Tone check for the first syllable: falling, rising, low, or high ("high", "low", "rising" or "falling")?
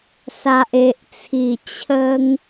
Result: low